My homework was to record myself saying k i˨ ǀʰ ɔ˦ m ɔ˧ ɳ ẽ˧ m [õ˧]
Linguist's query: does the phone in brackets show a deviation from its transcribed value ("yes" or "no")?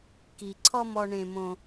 no